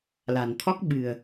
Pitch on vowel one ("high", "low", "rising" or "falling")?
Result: low